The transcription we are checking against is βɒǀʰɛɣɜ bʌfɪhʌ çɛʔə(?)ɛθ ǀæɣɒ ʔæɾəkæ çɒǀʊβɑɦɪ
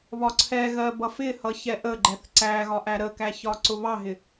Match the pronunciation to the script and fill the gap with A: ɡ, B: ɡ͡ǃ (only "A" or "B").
B